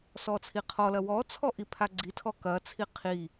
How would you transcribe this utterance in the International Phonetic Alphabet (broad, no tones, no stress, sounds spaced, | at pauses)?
s ɔ t͡sʰ i qʰ ɔ l ɐ w ɔ t͡sʰ ɔ ʔ i pʰ a ɡ͡ǀ i tʰ ɔ k ɐ t͡sʰ i qʰ i